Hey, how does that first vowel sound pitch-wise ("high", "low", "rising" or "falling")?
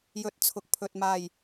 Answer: rising